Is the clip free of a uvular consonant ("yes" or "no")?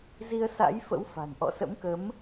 yes